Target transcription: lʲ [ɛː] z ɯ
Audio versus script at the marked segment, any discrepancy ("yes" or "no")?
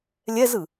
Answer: yes